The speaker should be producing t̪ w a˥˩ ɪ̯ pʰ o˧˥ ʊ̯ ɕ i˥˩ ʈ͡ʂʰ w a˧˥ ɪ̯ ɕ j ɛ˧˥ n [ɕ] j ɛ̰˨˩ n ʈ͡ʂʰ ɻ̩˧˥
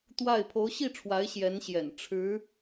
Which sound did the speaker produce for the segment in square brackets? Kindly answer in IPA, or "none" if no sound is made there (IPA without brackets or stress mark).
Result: ɕ